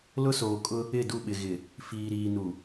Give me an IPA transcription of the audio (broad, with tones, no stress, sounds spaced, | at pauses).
l ʊ˦ s oː˨ kʼ ʊ˦ | ɪ˦˨ d u˦˨ ɓ ɪ˨ ɣ ɪ˨ | f iː˨ ɾ iː˨ n u˨